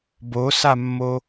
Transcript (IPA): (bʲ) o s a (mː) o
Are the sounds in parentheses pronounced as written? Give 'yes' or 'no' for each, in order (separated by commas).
no, yes